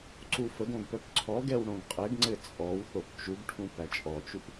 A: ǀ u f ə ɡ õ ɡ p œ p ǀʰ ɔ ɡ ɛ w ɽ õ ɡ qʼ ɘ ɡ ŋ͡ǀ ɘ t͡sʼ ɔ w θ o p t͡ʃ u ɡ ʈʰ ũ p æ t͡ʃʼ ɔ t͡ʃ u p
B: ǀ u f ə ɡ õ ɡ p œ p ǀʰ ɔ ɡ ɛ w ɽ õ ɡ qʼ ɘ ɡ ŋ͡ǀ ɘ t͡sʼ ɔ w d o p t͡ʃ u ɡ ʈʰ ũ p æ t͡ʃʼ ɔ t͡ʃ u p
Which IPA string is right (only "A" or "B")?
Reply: A